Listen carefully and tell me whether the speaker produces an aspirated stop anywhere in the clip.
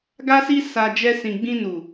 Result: no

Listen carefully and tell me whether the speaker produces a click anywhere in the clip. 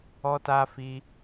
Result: no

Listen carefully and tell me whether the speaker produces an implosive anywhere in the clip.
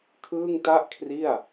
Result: no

